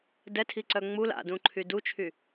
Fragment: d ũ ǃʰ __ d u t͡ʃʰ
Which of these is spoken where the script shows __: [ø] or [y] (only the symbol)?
y